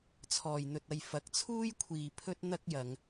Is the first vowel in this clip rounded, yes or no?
yes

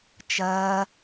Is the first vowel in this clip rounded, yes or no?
no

